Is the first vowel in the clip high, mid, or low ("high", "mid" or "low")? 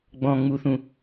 mid